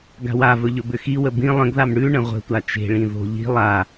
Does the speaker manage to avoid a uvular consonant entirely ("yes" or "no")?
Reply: no